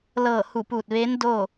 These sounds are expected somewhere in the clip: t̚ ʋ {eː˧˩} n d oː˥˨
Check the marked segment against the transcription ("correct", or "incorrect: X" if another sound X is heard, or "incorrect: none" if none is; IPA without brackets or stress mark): incorrect: eː˧˥